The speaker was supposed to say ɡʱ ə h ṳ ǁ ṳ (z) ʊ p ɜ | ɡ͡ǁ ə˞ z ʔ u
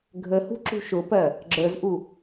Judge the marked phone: incorrect: ʃ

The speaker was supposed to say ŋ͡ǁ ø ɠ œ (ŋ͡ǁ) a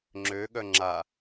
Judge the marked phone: correct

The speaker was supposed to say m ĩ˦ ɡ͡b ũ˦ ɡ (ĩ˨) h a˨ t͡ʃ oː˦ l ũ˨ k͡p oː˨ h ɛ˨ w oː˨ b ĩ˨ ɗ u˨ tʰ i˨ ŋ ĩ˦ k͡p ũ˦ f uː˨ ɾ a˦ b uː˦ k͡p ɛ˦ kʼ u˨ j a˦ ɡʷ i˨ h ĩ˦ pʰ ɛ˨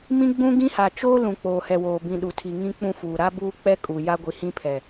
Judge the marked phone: incorrect: ĩ˦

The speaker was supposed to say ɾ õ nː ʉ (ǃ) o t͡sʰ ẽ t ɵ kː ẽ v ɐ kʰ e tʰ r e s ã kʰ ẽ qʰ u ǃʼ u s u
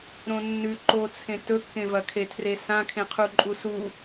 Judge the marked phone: correct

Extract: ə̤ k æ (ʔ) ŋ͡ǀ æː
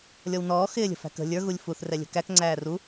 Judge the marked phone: incorrect: k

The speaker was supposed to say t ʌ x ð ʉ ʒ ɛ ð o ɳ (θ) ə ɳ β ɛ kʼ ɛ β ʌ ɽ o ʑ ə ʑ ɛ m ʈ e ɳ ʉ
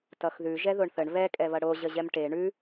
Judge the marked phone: correct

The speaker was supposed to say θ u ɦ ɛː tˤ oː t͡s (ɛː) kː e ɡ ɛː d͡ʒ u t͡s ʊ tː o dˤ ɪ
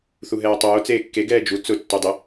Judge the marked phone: incorrect: eː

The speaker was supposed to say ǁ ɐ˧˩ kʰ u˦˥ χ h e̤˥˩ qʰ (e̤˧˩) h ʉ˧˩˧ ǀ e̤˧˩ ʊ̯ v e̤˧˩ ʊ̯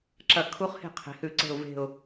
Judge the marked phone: incorrect: e̤˩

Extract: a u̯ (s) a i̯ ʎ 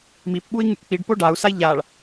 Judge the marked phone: correct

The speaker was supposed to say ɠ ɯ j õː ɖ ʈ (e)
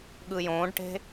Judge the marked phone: incorrect: e̤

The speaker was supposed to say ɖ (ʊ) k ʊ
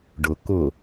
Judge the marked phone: correct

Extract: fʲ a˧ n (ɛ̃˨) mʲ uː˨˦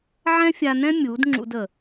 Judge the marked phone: incorrect: ɛ̃˦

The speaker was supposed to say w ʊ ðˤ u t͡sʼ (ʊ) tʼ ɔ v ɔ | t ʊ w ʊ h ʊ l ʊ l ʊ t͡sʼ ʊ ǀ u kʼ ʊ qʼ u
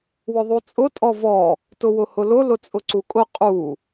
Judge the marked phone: correct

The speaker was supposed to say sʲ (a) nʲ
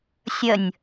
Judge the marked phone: incorrect: ə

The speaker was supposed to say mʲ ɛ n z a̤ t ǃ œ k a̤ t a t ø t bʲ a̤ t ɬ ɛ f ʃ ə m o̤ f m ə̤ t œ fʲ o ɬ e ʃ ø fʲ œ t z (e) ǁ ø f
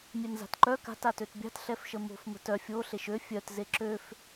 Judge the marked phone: correct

